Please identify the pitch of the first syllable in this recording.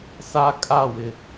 high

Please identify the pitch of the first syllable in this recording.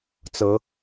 rising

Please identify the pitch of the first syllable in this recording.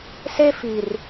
high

